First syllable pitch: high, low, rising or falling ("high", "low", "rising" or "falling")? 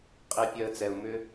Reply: high